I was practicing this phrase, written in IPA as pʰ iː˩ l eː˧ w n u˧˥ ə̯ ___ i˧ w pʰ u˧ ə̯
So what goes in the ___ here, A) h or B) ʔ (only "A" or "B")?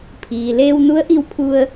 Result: B